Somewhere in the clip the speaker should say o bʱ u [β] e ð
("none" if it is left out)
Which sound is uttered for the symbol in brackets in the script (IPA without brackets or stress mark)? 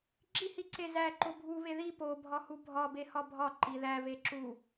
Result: β